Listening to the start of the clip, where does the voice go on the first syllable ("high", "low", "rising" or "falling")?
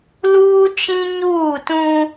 high